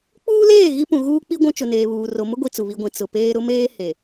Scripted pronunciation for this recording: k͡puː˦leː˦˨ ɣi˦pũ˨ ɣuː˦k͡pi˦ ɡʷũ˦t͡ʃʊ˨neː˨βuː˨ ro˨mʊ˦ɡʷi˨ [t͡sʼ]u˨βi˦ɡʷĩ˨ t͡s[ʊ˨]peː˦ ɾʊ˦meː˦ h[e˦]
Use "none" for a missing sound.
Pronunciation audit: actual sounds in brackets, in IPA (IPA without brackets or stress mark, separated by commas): t͡s, ʊ˨, e˨